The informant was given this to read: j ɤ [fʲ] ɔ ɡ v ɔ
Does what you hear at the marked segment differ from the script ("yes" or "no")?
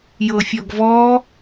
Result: no